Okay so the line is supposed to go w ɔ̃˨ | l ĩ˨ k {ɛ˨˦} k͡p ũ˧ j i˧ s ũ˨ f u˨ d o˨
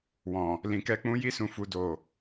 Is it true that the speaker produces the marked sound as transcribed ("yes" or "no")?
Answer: no